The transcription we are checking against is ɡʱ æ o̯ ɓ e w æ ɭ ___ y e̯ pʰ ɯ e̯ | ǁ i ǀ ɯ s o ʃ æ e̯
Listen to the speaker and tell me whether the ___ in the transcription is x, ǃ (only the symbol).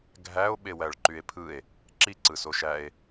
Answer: ǃ